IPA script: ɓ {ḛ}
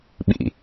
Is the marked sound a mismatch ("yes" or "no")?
yes